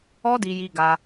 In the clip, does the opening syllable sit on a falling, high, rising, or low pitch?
high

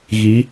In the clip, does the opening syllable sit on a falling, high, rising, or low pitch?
rising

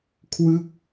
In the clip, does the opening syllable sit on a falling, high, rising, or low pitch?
falling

